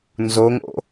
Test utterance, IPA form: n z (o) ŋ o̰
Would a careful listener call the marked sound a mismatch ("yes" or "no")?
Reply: no